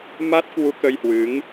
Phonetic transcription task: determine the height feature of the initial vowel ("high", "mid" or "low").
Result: low